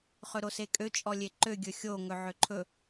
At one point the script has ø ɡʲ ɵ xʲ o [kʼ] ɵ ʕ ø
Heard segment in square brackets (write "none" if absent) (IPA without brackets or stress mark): ŋ